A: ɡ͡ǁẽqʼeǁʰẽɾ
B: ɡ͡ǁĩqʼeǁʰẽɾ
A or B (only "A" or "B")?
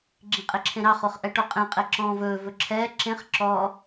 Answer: B